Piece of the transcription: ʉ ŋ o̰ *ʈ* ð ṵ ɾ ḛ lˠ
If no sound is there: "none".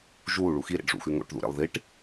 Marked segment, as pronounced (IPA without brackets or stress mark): ʈ